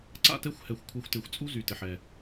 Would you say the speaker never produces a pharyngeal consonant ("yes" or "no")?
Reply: no